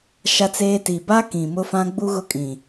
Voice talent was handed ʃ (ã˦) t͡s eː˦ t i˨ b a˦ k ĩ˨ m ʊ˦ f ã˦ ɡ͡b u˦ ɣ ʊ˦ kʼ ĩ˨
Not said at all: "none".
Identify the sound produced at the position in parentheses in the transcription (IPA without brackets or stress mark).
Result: a˦